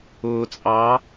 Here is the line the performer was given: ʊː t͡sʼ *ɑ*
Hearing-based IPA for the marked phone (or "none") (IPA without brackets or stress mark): ɑ